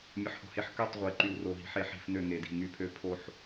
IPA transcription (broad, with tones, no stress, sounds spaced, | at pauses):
mʲ ə˦˥ ħ h o̤˥˧ h e˥˧ ħ k ø˥˧ tˤ ʁʷ e˦˥ ǃ y˥˧ w r o˥˧ ɦ i̤˦˥ ħ e˥˧ ħ i̤˥˧ f n ø˥˧ ŋ e˦˥ d i̤˥˧ ŋ y˦˥ pʰ ø˦˥ pʰ o˥˧ ħ